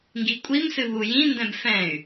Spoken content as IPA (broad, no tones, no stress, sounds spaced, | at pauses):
ŋ ɡ i kʷʼ i m s ɨ β u j ĩ n d ɛ̃ b f ɛ̃ y̯